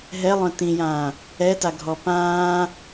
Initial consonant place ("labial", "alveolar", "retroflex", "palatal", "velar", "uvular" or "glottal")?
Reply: glottal